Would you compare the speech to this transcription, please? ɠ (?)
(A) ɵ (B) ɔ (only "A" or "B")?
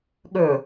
A